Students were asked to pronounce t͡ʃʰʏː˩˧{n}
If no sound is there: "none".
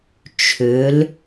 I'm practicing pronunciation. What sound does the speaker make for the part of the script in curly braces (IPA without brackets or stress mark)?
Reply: l